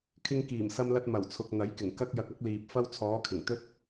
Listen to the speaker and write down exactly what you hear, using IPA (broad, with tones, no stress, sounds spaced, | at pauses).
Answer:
kʰ ɪ˧ ŋ k iː˨˩ m s ɐ˧ m l ɐ˧ t̚ m ɐ˨˩ w t͡sʰ ʊ˨ k̚ n̪ ɐ˨˥ j k ɪ˨˩ ŋ k ɐ˥ k̚ j ɐ˧ k̚ ɐ˥ k̚ l iː˨ p̚ f ɐ˥ w t͡sʰ ɔː˨˧ kʰ ɪ˨˩ ŋ t̪ ɵ˥ t̚